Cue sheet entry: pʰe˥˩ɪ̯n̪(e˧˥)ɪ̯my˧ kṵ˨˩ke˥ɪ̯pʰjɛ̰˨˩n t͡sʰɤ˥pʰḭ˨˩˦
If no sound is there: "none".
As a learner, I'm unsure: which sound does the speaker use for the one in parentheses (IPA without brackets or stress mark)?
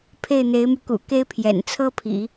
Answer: e˧˥